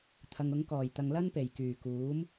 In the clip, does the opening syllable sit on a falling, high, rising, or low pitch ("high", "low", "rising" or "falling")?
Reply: low